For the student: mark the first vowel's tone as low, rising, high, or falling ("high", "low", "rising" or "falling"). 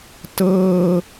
low